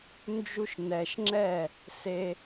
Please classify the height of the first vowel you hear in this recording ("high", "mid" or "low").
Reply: high